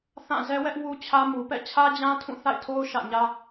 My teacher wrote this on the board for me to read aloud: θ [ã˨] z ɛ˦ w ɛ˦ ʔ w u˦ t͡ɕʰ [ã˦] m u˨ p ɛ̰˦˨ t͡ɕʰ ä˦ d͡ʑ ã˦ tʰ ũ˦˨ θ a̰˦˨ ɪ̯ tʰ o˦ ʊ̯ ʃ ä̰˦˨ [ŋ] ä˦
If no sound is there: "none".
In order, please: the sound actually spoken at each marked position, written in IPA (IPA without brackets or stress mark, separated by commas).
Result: ã˦˨, ä˦, ɲ